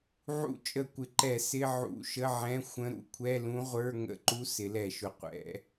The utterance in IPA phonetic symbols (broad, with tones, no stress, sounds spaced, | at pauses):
ʕ ṵ˧˥ t͡ʃʼ ə˧˩˧ kʷ ɪ˩˧ ǃ ɛ˧˩˧ s ɪ˧˥˧ ʕ ṵ˧˩˧ ʃ ə˧˥˧ ʕ ɛ̃˧˥˧ xʷ ə̃˧˥ ɾ ṵ˩˧ kʷʰ ɛ˧˥˧ l ũ˧˥ ʁʷ ə˞˧˥˧ ŋ ə̰˧˥˧ ǃ u˧˥ s ɪ˩˧ l ɛ˧˩˧ ʃ ʊ˩˧ qʷ ɛ̰˩˧